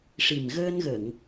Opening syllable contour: low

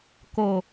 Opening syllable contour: low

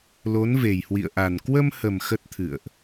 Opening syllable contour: rising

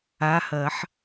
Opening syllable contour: rising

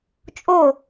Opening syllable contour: falling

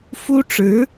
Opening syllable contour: high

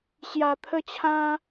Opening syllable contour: low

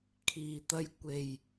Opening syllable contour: low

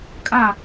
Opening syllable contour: falling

